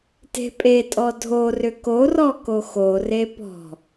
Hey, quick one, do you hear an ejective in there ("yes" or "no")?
yes